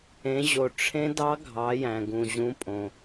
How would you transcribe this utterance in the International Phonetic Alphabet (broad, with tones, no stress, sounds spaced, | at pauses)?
ẽ˩˧ ʑ o˩ ʈ͡ʂʰ ẽ˧˥ d ɑ˧˥ ɡʱ ɑ˩˧ j æ̃˩ ɡ ũ˩ ʑ ũ˩˧ pʼ õ˩